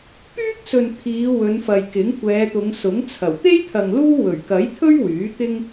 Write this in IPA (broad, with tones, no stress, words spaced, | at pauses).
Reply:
pyː˥k̚sɵ˨n t̪ʰiː˨˧ wɵ˨˧nfɐ˨jkɪ˨˥ŋ kʷɛː˨˧t̪ʊ˨˧ŋsʊ˨˥ŋt͡sʰɐ˨˩w t̪e˥jt̪ʰɐ˨ŋ luː˥ wɵ˨˩ɥkɐ˨˥jt̪ʰɵ˥ɥ wyː˨˥ t̪ɪ˥ŋ